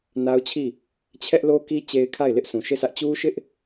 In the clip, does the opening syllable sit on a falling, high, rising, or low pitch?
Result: high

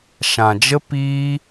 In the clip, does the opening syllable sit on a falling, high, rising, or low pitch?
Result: low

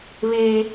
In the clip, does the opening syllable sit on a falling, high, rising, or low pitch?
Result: high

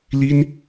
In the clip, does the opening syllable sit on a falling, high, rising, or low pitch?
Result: high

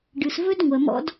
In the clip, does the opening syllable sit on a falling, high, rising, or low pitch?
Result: low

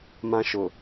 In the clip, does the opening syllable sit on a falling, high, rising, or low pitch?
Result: high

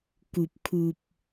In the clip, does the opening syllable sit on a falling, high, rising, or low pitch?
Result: low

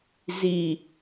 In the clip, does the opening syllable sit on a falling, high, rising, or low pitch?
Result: low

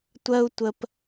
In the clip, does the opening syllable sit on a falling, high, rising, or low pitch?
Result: high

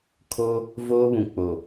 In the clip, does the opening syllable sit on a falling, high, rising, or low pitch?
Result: high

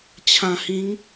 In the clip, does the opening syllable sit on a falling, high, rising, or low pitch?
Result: low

